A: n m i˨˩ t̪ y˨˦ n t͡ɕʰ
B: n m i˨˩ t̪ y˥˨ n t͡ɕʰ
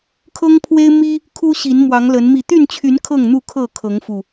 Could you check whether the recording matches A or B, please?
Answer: B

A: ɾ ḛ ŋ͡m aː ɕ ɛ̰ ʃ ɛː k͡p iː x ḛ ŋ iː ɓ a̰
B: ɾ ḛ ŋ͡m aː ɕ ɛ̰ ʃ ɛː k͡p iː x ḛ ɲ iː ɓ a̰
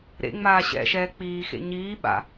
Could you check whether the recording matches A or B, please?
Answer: B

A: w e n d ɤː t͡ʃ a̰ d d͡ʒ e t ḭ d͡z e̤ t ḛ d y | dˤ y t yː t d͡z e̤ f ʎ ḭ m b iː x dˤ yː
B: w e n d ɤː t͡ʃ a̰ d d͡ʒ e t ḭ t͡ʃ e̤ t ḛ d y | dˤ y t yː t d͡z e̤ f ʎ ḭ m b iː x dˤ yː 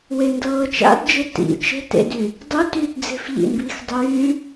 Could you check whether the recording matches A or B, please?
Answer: B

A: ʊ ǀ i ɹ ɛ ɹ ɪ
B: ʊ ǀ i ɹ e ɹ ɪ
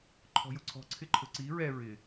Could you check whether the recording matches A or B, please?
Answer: A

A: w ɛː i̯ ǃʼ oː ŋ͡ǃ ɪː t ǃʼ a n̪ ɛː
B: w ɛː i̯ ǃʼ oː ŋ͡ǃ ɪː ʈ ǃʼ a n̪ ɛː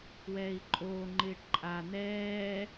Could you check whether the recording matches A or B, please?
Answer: B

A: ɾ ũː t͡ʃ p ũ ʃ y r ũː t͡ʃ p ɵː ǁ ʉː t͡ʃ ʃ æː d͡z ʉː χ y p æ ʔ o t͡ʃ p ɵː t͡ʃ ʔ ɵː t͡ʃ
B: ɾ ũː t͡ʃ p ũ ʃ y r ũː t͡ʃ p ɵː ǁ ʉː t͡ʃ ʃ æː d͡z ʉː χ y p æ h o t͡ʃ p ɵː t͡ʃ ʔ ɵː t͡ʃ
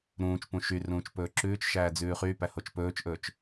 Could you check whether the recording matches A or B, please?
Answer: B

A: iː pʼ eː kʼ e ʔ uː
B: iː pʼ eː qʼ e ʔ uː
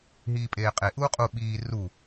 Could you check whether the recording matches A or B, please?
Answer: B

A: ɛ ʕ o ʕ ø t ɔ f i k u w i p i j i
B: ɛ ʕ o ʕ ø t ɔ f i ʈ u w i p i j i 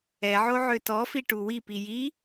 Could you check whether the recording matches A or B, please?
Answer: B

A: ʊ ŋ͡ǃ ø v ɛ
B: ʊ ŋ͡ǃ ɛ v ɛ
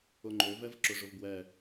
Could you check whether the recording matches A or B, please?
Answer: A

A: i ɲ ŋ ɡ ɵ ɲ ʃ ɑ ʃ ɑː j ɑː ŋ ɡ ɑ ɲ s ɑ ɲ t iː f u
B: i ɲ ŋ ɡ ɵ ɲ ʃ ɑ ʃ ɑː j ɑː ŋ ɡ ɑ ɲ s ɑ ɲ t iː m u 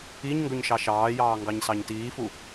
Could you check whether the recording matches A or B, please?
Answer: A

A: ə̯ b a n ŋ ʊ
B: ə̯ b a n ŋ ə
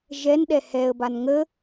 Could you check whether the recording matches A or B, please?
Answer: B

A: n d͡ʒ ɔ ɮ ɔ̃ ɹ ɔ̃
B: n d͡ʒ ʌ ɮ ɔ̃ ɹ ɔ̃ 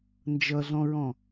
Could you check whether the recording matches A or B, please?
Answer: B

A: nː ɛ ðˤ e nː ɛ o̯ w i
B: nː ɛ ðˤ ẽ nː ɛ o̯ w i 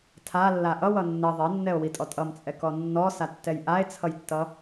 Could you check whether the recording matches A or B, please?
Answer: A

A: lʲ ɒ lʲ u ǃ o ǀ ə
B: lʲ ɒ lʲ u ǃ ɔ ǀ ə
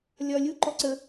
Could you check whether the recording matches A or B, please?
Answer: B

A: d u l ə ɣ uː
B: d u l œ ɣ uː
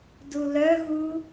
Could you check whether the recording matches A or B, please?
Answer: B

